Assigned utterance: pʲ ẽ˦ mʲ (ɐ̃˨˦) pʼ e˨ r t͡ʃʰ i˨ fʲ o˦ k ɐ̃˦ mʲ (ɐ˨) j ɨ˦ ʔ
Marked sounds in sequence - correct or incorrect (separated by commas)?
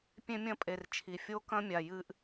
incorrect, incorrect